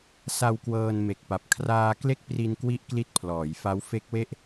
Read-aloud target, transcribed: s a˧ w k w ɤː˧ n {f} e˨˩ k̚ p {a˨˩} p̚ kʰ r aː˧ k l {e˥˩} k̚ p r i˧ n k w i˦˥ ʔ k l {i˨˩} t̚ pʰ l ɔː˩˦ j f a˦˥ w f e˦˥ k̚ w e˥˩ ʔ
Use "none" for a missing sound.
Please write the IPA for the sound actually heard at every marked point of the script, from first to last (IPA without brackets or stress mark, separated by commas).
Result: m, a˨˩, e˥˩, i˦˥